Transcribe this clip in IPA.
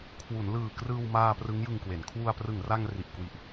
kʰ w u˩˦ n l ɯː˨˩ k r ɯː˧ w m aː˧ p r ɯ˦˥ ŋ j ɯ˧ ŋ k w e˩˦ n kʰ w u˧ a̯ p r ɯ˨˩ ŋ r a˧ ŋ r i˨˩ ʔ k w i˨˩ ʔ

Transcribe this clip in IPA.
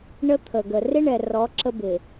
ɳ ə˦ t̪ʰ ə˨ ɡ ə˨ r ɪ˦ ɳ ɛ˨ r ɔ˨˦ ǁ ə˦ b ɪ˨

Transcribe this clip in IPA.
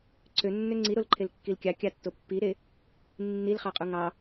ǀʰ ø nː ø ŋ͡ǀ i ɾ o l ǃʰ e l kː i l kʲ ɑ kʲ ɑ tː o pː i ɾ e | nː i l χ ɑ qʼ u ŋ ɑ

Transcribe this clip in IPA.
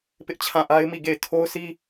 p ɪ˦ ʔ t͡ɕʰ ã˦˨ ʔ a˦ ɪ̯ m i˦˨ ɡ e˦˨ ɪ̯ tʰ o˦ ʊ̯ s i˦

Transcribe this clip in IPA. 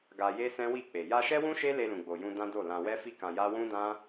ɡ a˧ j e˦ s ɛ̃˦ w i˦˨ k͡p e˨ j a˧ ʃ ɛ˦ w ũ˦ ʃ e˦ l e˧ l ũ˨ ɡ͡b o˨ j ũ˧ d ã˦ d o˦˨ l ã˧ w ɛ˦ f i˦ k ã˧ j a˦ w ũ˦ d ã˦

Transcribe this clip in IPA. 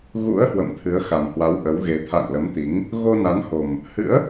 ɣ ṵ˧˥ ə̯ h w ə̰˧˨ m t̪ʰ ɨ˨˦ ə̯ x a˨˩ m h w a˨˦ w ʔ ə˨˦ w ɣ e˨˦ t̪ʰ a̰˧˨ ŋ l ə˨˦ m t̪ i˨˦ ŋ | ɣ o˧ n a˨˦ n h o˨˩ m | h ɨ̰˧˥ ə̯

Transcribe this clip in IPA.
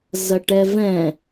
z ɐ ʈ ɛ v ɛ̃

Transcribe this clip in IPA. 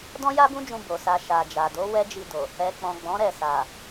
d ɔ̃˦ j a˦ b ũ˦ d͡ʒ ũ˧ b o˨ s a˨ ʃ a˨ d͡ʒ a˨ d o˨˦ w ɛ˦ d͡ʒ i˧ d o˨ | ɛ˨ k͡p ɔ̃˨ ɡ͡b ɔ̃˨˦ ɾ ɛ˦˨ s a˨

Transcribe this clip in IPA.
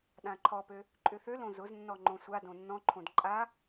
ɗ ã ǃʰ ɔ p ø | ǃʼ ʏ θ ø l õ z ʊ z nː ɔ ŋ͡ǃ õ sʷ a d õ nː ɔ̃ ǃʰ õ d ǃʼ a

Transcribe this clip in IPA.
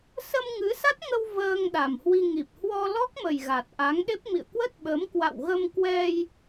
s ə˧ m ŋ ɨ˨˦ s a˦˥ t̚ ŋ ə˧ w v əː˧ ŋ ɗ a˨˩ m h w i˧ ŋ i˨˩ p̚ h w ɔ˧ l ɔ˦˥ k̚ m ə˨˩ j ɣ a˨˩ t̚ ʔ a˨˦ ŋ ɗ e˦˥ p̚ m ḭ˧˨ ə̯ k w ə˦˥ t̚ ɓ ə˨˦ m k w a̰˧˨ w ɣ ə˧ m k w ɛ˧ j

